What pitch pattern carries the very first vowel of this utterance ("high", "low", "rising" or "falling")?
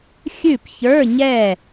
falling